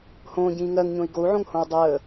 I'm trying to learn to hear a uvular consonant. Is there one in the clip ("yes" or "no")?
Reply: no